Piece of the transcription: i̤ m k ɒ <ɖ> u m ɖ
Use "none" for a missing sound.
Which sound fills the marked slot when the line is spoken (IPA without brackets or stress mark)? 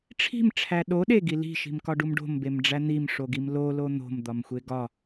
ɖ